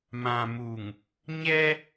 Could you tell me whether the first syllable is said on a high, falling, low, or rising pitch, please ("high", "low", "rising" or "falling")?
low